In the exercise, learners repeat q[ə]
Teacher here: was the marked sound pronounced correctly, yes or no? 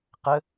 yes